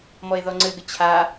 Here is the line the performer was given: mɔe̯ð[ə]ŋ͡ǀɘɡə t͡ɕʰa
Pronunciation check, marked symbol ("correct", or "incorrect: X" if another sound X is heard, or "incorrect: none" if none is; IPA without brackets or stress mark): incorrect: ɔ